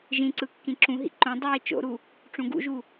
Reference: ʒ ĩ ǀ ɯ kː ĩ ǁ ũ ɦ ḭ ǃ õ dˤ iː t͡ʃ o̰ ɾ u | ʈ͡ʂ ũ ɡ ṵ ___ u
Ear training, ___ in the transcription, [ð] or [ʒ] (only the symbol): ʒ